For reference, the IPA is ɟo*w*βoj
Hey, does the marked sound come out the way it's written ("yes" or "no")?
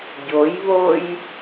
no